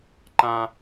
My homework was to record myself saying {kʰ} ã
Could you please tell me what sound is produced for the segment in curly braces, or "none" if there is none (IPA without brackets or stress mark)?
ǃ